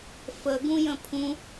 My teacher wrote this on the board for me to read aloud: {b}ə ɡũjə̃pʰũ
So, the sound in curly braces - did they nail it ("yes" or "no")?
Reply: no